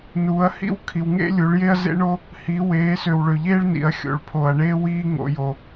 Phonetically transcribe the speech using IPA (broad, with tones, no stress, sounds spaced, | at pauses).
n uː˩˧ ɐ̯ h ḭ˦ w kʰ i˩ w ŋ ḛ˦ lʲ u˩˧ ɭ j e˦ ɐ̯ z ḛ˦ ɳ o˦ | h i˩˧ w eː˩˧ s ø˩ w ɭ ø˩ ʎ eː˦ ɭ n ḭ˩ ɐ̯ xʲ o̰˩ ɭ pʰ o˩ ɐ̯ ɳ eː˦ w iː˦ ŋ o̰˩˧ j o˩